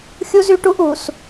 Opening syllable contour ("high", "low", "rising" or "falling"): high